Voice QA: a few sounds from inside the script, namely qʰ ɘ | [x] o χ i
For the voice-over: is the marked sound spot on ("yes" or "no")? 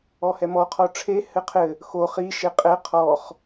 yes